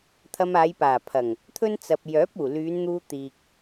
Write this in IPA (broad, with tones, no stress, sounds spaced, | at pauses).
t̪ʰ ɐ˧ m aː˨˧ j p aː˨˩ pʰ ɐ˨˩ ŋ | t̪ʰ ɵ˥ n t͡s ɐ˨ p̚ j œː˨˥ p̚ uː˨˩ l yː˨˧ n n̪ uː˧ t̪ iː˨ k̚